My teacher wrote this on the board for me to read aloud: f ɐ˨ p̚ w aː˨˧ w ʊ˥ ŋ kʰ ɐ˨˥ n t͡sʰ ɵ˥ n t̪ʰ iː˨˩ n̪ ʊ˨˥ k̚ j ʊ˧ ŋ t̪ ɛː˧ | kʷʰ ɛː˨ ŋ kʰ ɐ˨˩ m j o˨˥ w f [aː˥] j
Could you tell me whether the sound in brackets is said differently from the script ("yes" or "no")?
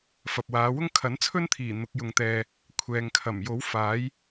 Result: yes